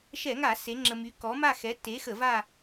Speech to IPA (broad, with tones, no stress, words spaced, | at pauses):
ʃɛ˧˩˧ŋa˧˩˧ se˨˥ŋ͡ǁə˧my˨˥ kɔ˨˥ma˥˧ xɛ˨˥tːe˨˥xə˧˩˧ va˥˧